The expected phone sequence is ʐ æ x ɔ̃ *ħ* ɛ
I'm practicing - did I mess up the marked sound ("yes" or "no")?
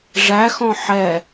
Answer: no